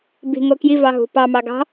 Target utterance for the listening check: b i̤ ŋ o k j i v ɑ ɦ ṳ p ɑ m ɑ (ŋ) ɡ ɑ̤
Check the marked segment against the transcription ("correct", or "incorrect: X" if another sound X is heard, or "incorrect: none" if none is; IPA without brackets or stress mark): incorrect: none